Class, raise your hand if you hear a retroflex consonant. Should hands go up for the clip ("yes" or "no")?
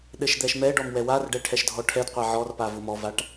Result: yes